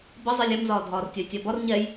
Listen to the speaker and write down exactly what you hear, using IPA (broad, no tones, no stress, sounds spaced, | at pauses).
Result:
b ʌ zˤ i lʲ ɛ m z ɒː dʱ ɒː r tʲ ɜ j tʲ æ b ɒ r ɲ ɛ j